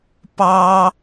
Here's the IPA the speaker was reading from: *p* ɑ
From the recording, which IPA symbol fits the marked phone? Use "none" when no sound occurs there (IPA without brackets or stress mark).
p